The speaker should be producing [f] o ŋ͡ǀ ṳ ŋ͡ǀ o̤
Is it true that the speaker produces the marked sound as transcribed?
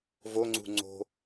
no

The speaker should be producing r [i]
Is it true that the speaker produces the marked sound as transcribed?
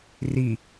yes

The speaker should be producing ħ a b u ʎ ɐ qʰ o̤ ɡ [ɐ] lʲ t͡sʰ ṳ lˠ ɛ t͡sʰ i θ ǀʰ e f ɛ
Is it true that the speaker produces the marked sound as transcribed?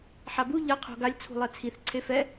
no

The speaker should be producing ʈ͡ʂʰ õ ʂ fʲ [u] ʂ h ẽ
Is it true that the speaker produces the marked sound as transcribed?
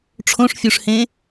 yes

